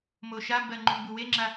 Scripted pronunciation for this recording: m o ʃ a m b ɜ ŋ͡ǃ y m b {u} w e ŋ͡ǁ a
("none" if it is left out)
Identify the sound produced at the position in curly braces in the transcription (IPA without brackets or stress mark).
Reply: u